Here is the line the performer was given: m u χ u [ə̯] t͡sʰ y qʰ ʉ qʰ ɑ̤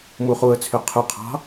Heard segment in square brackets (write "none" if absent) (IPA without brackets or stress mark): ə̯